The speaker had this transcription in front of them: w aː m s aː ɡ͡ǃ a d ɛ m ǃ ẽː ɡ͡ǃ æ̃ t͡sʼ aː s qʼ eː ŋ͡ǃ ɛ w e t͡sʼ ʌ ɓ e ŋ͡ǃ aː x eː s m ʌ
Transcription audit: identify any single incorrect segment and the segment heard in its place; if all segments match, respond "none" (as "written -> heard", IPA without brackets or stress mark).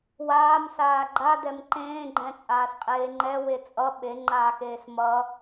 æ̃ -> ɛ̃